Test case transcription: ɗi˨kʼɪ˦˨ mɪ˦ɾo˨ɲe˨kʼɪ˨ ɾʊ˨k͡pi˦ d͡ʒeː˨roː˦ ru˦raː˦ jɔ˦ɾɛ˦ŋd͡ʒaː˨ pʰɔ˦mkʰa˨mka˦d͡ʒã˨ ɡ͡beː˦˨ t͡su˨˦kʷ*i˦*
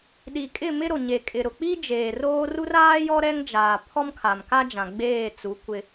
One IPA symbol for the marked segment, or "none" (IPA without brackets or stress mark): ɪ˦